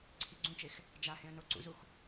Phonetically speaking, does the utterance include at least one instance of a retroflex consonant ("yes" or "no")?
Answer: no